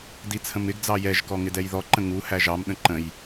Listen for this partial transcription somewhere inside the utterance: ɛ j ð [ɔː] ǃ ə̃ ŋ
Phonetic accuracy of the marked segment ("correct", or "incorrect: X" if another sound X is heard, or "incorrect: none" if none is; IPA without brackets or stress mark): incorrect: ɔ